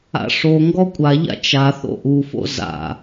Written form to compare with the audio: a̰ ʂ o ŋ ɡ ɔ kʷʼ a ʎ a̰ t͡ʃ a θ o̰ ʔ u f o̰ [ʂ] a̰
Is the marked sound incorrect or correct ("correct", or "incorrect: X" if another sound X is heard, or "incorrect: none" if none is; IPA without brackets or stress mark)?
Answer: incorrect: z